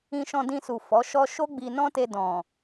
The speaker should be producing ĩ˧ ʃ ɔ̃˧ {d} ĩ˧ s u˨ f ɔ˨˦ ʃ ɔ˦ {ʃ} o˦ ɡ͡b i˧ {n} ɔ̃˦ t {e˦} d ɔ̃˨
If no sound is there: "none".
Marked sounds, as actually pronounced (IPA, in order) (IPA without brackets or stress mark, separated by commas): d, ʃ, n, e˧